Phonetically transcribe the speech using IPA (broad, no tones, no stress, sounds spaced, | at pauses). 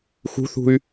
x ṳ θ ṳ y̯